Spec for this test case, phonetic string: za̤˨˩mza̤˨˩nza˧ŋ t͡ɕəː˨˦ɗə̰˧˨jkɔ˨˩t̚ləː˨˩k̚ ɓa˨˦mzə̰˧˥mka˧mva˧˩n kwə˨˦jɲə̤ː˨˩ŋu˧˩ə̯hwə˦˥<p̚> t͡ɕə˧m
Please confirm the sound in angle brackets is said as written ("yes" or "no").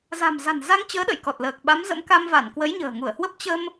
yes